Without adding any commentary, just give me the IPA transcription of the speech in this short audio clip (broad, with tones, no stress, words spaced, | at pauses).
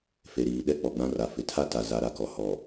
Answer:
fe˨ɾiː˨ɗɛ˦ k͡pɔ˨ɡ͡bã˦ra˨ fɪ˨tʰa˦ta˨ za˨˦ɾa˨kɔ˨ hɔ˨